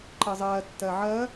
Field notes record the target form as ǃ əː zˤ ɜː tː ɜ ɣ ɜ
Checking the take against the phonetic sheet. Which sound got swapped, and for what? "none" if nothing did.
ɣ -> ʕ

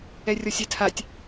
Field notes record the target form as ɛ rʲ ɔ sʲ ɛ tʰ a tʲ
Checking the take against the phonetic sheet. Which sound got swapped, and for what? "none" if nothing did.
none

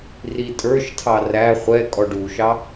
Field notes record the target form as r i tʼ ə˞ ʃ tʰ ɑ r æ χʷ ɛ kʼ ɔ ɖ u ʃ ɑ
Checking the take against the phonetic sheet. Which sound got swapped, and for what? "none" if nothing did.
none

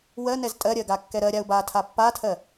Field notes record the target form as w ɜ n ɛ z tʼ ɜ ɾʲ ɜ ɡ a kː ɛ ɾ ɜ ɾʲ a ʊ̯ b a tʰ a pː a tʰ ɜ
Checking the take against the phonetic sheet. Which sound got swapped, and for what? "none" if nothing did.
none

